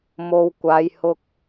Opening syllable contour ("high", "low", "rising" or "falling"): low